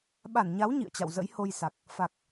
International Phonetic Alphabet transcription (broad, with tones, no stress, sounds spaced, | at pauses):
ɓ a˧˩ n ɲ a˨˦ w ɲ ḭ˧˨ ə̯ t͡ɕ a̰˧˨ w z ə̰˧˥ j h o˧ j s a˨˩ k̚ | f a˨˩ k̚